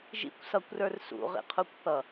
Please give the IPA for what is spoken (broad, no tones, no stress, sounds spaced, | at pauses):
ʒ ḭ kʷ s ʌ kʷ r ə˞ r s ṵ ʁ ḭ qʰ u kʷ θ ʌ